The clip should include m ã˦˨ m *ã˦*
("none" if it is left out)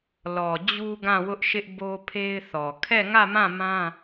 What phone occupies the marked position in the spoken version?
ã˦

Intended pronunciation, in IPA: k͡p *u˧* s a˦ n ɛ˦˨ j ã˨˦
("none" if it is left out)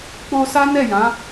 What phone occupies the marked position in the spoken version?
o˧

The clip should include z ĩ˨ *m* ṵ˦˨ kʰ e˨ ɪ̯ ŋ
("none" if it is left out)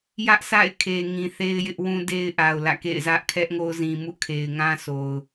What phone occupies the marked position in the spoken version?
m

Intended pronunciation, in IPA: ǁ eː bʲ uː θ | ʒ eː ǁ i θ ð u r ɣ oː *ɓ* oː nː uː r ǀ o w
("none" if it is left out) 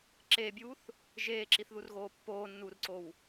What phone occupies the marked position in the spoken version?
pː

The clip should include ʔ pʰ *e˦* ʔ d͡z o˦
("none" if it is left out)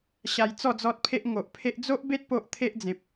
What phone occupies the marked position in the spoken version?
e˦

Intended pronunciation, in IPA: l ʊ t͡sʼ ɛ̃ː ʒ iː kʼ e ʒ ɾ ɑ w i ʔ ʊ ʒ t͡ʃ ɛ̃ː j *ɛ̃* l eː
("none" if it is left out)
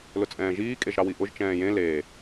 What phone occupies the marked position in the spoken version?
ẽ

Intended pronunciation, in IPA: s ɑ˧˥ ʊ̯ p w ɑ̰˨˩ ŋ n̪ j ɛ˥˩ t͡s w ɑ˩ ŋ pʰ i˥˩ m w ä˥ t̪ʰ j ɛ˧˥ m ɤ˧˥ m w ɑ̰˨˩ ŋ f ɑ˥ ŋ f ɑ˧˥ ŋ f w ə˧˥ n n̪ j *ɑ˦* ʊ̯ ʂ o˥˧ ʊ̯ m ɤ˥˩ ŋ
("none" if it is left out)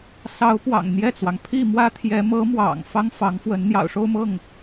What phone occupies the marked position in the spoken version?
ɑ̰˨˩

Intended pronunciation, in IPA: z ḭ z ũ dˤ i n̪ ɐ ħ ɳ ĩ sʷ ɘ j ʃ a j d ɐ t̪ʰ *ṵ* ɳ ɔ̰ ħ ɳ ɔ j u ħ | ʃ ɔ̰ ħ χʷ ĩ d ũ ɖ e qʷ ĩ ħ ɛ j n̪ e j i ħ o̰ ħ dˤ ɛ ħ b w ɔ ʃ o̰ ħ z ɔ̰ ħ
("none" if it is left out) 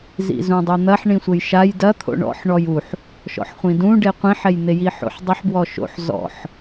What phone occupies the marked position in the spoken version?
o̰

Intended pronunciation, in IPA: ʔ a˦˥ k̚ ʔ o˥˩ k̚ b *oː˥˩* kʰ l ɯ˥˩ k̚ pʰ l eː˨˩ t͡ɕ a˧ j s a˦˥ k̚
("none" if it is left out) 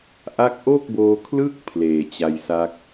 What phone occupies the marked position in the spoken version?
oː˧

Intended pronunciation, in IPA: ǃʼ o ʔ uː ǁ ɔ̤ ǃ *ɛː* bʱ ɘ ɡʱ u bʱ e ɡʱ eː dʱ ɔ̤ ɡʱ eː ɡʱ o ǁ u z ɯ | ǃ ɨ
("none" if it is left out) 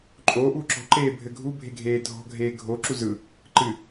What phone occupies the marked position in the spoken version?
eː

